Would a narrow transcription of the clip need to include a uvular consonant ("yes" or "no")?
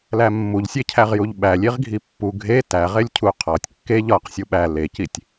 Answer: yes